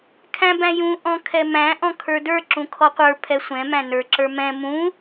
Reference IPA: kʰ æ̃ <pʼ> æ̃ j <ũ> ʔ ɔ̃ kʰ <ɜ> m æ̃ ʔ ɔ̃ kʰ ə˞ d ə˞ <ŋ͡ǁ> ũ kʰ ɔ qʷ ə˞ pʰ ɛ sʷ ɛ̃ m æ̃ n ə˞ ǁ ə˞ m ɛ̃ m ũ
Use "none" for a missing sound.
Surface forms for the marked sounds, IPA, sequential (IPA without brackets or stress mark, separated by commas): b, ũ, ɛ, ǁ